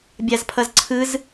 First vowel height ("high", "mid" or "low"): low